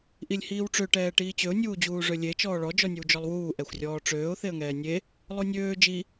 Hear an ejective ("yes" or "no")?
no